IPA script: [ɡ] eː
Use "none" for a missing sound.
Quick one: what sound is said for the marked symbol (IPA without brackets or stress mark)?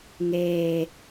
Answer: ŋ